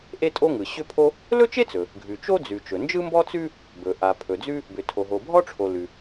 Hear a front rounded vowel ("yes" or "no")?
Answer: yes